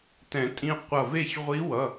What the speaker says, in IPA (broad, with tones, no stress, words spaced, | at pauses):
tɛ̃˨˩˦tʼĩ˧ qʷʌ˧˩ve˥˨ç ʁʷi˧˥wʌ˩˧˩